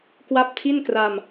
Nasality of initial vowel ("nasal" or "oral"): oral